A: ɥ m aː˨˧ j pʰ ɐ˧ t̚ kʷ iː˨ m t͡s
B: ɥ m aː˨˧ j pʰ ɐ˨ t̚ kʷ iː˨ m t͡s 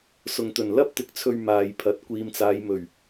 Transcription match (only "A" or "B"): B